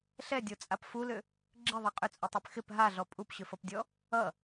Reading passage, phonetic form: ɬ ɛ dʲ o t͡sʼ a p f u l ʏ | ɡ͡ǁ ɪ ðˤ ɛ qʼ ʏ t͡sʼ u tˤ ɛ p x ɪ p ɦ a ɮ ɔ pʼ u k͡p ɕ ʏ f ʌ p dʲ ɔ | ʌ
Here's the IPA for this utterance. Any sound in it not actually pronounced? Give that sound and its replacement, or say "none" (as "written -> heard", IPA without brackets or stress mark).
k͡p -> p